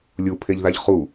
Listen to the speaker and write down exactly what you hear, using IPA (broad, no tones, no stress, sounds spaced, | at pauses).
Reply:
lʲ u pʰ e ʎ ð a ʎ χ u